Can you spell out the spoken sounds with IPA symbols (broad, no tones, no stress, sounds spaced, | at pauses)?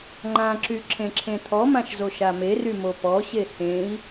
ŋ͡ǃ ã ǁ y ǁʰ ẽ ǁʰ ẽ t̪ʰ ɔ m ã ʃ z o ʃ a m e r y m o p ɔ ɕ e h ẽ i̯